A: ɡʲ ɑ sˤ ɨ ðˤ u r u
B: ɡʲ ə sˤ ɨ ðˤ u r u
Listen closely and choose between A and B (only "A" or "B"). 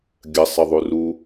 B